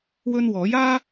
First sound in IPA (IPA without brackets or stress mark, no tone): w